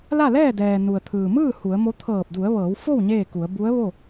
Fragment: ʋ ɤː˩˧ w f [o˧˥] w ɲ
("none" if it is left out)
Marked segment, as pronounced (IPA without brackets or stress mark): o˥˨